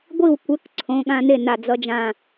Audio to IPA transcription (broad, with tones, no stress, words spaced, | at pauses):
ɡʷi˥˩w kʷɛ˨˥k ǀʰõ˩˧˩ɠã˧ ne˥˩na˧˩ d͡zʌ˧d͡ʒã˧˩